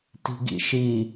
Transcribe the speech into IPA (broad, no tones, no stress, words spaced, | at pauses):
ti̤ɡḭʃi